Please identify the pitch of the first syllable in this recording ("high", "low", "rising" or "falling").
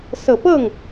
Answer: low